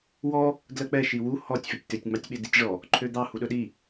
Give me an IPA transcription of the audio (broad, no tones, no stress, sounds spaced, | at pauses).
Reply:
w ɔ | d l ɜ k͡p ɛ ʃ i w u h ɔ tʲ f e tʲ t̪ ø tʲ ŋ͡m ɑ tʲ ɓ e d i tʲ ʐ ɔ | ǃʰ ø d̪ ɑ h u ɗ ɵ ɗ i